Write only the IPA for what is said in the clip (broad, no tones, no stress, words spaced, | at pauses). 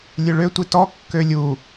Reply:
lʲøɭø tʷitɔ kːølʲu